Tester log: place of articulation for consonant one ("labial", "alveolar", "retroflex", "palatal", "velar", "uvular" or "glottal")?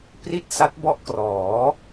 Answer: labial